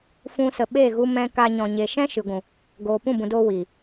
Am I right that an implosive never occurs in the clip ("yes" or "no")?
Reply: no